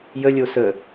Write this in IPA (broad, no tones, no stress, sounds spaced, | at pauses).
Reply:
j ə lʲ o s ə